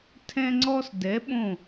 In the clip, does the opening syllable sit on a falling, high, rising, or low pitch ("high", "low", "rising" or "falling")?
high